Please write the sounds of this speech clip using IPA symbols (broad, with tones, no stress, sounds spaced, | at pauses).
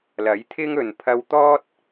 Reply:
l ɐ˨˥ j t̪ʰ ɪ˥ ŋ ɵ˨ n pʰ ɐ˧ w t̪ ɔː˥ t̚